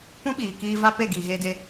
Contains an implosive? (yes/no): yes